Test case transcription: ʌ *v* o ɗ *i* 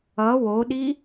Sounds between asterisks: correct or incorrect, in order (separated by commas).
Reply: incorrect, correct